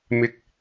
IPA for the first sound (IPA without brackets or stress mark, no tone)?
m